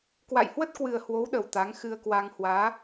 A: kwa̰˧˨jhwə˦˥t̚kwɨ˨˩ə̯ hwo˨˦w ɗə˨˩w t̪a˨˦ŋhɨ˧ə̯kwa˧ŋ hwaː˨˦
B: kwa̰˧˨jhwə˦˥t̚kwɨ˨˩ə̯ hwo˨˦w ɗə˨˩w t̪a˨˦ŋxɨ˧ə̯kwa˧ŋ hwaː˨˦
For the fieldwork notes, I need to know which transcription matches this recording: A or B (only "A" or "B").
B